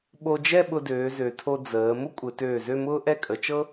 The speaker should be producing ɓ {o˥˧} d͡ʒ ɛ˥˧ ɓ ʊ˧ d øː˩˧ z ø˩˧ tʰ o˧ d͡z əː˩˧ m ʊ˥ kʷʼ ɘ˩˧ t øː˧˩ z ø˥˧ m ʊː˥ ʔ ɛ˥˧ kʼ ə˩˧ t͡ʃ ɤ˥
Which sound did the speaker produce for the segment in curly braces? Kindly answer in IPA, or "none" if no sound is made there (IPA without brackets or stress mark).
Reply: o˧